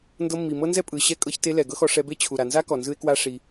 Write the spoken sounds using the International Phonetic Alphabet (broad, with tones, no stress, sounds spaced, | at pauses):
n d ɤ˧ mː i˨ m ɤ˦ n z ɛ˦ pʼ ɯ˨ ɕ ɛ˦˨ kʼ ɤ˧ ç t e˧ l ɛ˨ ɡ ɤ˦ x ɔ˧ ʂ ɛ˧ b e˦ t͡ɕʰ u˨ ɾ a˨ n z a˦ k ɔ˨ n z ɯ˧ e̯ k w a˦ ʂ i˧